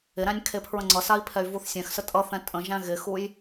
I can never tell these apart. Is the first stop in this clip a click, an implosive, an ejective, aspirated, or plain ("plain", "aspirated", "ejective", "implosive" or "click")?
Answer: aspirated